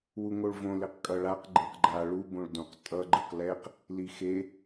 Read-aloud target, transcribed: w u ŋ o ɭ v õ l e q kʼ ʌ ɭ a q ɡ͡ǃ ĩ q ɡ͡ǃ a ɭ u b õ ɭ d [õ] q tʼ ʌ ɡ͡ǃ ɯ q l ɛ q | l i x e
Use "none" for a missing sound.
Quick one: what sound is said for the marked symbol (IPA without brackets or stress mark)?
õ